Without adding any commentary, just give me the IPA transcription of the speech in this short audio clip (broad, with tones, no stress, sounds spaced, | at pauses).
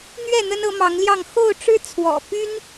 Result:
n̪ ɥ ɛ˥˨ n̪ ə˦ n ɤ˨˦ m ɑ˨˦ ŋ l j ɑ˥˨ ŋ x o˥˨ ʊ̯ ʈ͡ʂ ɻ̩˦ t͡sʰ w ɔ̰˨˩ p y˦ n